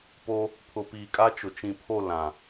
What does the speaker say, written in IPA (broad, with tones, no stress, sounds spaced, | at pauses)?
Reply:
p o˦ | pʰ ʊ˨ p iː˨ kʼ a˦ t͡ʃ ʊ˨ t͡ʃ ĩ˨ pʰ o˦˨ l ã˨